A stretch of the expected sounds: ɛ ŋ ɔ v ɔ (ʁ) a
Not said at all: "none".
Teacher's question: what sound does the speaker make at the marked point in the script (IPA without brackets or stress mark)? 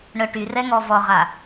ʁ